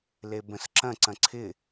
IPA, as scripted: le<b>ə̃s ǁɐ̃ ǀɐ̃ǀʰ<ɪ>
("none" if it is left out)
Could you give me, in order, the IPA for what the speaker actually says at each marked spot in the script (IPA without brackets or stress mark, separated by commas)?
b, ɪ